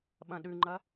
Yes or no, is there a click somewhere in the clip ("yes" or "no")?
yes